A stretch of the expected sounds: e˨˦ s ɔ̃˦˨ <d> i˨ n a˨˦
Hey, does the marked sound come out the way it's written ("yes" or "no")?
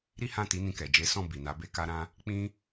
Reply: no